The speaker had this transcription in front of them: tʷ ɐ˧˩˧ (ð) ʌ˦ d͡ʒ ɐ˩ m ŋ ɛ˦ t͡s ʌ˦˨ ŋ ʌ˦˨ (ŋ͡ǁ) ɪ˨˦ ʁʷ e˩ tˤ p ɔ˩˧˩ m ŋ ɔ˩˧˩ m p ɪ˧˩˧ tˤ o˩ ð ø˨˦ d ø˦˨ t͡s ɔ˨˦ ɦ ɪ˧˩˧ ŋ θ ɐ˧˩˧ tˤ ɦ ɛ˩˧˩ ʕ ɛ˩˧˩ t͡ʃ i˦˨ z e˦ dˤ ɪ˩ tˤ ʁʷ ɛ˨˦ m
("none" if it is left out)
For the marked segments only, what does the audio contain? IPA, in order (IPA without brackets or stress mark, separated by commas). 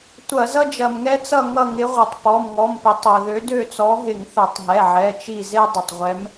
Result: z, ŋ